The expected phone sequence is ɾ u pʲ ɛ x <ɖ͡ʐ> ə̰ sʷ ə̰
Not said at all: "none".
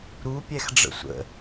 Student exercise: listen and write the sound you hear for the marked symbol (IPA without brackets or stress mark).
ɖ͡ʐ